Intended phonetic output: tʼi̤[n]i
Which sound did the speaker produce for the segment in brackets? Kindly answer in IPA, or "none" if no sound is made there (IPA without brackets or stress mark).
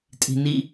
n